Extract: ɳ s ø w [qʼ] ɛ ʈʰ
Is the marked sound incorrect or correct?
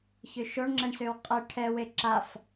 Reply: correct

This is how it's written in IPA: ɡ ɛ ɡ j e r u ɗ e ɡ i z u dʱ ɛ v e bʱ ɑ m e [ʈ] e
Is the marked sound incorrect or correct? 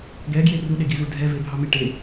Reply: correct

